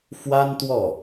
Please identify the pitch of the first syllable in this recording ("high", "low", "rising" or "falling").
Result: high